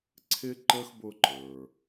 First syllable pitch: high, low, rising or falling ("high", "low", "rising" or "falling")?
high